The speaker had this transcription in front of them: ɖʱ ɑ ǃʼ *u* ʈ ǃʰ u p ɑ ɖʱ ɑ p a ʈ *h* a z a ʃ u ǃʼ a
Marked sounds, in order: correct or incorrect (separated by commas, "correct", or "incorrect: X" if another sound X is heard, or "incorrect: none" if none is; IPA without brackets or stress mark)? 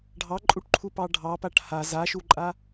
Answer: correct, correct